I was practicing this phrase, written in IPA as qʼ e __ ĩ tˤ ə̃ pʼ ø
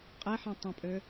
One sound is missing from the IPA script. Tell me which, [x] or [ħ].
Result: ħ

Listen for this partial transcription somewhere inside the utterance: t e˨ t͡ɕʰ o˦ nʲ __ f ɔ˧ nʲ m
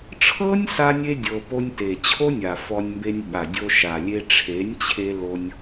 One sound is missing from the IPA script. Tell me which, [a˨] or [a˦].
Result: a˨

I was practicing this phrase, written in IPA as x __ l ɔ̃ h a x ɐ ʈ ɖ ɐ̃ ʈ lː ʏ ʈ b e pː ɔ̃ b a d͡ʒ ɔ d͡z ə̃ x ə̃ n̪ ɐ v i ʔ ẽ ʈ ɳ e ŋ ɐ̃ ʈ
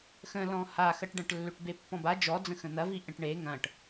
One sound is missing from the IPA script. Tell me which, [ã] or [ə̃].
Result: ə̃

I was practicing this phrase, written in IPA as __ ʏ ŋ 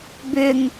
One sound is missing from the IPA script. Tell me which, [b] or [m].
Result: b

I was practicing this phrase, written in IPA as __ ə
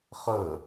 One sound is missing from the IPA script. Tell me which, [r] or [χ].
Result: χ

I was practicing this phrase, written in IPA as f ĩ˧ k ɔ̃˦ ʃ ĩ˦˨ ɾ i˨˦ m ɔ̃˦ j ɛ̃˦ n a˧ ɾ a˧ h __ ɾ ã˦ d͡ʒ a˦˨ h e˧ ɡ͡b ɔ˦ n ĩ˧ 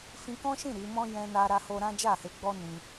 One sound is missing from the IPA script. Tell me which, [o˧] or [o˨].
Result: o˧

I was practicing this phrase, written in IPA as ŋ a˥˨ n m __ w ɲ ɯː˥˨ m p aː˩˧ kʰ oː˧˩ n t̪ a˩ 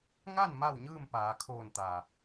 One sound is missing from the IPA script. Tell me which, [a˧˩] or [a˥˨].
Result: a˥˨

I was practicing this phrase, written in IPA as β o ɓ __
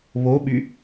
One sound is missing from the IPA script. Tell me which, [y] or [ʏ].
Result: y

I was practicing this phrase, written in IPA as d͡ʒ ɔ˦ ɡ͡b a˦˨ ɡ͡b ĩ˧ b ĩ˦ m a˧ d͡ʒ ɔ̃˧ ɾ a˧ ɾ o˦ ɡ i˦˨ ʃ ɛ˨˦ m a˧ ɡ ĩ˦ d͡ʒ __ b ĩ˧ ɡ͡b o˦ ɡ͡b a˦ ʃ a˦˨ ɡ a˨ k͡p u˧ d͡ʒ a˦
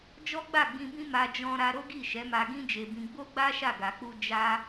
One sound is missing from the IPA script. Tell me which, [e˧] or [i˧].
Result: e˧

